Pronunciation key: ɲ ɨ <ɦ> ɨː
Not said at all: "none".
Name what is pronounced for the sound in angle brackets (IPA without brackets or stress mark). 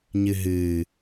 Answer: ɦ